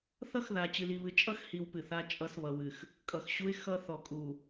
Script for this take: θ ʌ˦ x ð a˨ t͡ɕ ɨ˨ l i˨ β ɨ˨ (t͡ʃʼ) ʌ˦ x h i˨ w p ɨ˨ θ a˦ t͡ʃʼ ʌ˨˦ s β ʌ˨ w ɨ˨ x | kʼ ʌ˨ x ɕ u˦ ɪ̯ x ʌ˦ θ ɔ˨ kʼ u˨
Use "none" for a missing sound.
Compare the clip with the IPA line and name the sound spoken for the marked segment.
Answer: t͡ʃʼ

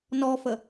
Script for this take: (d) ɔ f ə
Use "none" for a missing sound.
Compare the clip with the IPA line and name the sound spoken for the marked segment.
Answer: n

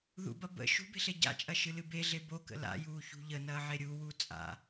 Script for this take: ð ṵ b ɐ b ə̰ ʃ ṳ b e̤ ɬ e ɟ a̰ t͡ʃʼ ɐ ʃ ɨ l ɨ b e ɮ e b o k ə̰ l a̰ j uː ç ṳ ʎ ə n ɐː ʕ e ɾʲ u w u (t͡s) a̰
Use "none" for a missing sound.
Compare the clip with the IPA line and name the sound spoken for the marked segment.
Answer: t͡sʼ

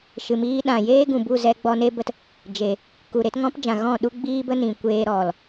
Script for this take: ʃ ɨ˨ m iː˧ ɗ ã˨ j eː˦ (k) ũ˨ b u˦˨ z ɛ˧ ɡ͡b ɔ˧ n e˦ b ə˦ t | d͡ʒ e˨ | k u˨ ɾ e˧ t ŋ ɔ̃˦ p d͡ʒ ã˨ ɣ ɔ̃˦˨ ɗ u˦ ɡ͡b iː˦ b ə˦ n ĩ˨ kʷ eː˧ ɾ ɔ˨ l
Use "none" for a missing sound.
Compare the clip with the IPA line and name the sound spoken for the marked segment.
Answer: ɡ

